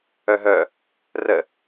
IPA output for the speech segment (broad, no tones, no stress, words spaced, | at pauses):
œɦœ | rə